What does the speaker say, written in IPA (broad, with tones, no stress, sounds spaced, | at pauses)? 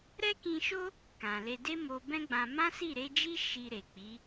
ɾ ɛ˦ k ĩ˧ ʃ o˦ | k ã˨ l e˧ d e˦ m o˧ b ɛ̃˦ ɡ͡b ã˧ m ã˦ s i˦˨ ɾ e˨˦ d͡ʒ i˦ ʃ i˧ ɾ e˨ k͡p i˨˦